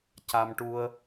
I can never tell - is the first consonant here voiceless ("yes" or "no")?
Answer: yes